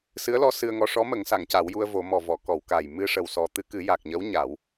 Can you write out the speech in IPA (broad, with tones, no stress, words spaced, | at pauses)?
sɨ˧˥ə̯lɔ˧˥ sɨ˧ə̯ŋɔ˧˥ ʂɔ˧˥mə˨˩˦ŋsa˨˩˨ŋ ca˨˩˦wju˧ə̯vo˨˩˦mɔ˨˩ vɔ˨˩˨kɔ˨˩˨w ka˨˩j mɨ˧ʂə˨˩wsɔ˨˩ t̪ɨ˧kɨ˨˩˦ja˨˩k̚ɲə˧˥w ɲa˨˩˦w